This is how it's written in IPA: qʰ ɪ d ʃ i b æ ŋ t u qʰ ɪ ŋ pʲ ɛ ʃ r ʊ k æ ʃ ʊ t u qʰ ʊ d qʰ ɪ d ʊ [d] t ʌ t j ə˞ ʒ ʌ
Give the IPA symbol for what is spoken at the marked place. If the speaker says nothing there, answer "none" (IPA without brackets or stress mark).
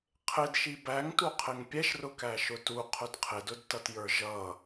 d